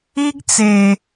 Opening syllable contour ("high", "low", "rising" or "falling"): high